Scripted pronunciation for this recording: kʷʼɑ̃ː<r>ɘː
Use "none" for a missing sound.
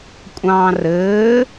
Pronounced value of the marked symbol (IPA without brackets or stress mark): r